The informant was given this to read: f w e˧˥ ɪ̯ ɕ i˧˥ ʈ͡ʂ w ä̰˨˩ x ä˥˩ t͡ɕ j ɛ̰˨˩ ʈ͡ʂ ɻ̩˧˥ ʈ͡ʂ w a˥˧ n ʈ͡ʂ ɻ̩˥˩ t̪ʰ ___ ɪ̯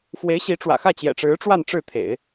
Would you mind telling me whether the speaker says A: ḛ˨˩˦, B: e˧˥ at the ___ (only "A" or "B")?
A